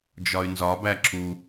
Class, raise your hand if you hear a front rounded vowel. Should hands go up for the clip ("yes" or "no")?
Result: yes